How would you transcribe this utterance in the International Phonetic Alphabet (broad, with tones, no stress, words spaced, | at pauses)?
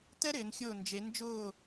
tɛ˥ɾɪː˩˧nxʲʊː˧˩ nd͡ʒe˩˧nd͡ʒʊː˧˩